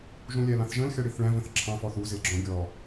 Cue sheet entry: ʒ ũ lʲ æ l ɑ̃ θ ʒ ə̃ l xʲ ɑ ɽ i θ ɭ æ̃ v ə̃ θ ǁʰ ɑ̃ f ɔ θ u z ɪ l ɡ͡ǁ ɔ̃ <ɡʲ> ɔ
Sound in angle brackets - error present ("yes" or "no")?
no